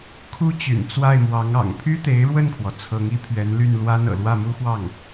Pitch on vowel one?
high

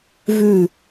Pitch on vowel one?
falling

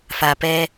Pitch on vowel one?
low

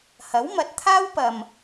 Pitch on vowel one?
rising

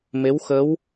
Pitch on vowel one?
rising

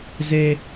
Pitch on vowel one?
high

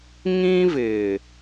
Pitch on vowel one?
high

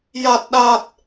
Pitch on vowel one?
low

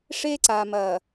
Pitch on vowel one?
high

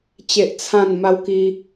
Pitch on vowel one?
high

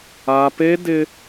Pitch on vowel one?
high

